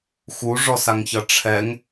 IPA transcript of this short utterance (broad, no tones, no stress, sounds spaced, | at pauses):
x u ʐ ɔ s a ŋ ç ʌ ʈ͡ʂʰ ɛ ŋ